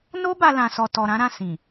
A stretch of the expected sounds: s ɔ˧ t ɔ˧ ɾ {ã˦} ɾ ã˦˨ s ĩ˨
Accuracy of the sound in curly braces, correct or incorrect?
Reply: correct